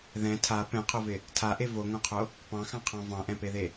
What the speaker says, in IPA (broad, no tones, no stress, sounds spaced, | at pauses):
ð ɛ̃ tʰ a p ɛ̃ qʰ o v ɪ | tʰ a ʔ e v o ŋ õ qʰ o | p ɑ̃ x ɑ̃ qʰ ɑ̃ v ɑ̃ ʔ ɛ̃ p e ð e